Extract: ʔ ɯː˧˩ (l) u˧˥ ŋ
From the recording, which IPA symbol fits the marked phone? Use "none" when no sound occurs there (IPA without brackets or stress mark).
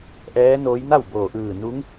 n